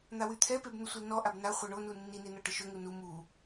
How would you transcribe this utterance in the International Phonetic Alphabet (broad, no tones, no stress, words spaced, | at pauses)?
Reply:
n̪awyt̪ʰɛpeb n̪əsʷilnɔʔab na χʷœɳonu nːine nɔʈəʃøŋu nu mu